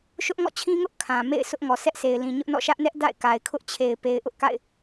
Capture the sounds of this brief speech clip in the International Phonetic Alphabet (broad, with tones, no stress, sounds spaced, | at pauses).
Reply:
ʃ ʊ˦ ʔ ŋ ɔ̰˦˨ t͡ɕʰ ĩ˦ ŋ ʊ˦ ʔ kʰ ã˨ m ḛ˦˨ ɪ̯ s ʊ˦ ʔ ŋ ɔ˨ sʰ ɛ˦ ʔ s e˨ ɪ̯ l ĩ˨ ɲ ʊ˦ ʔ n ɔ̰˦˨ ʃ ä˦ ʔ n ɛ˦ ʔ d a̰˦˨ ɪ̯ k a˨ ɪ̯ kʰ ʊ˦ ʔ t͡ɕʰ e˨ ɪ̯ p e˨ ɪ̯ ʔ ʊ˦ ʔ k a̰˦˨ ɪ̯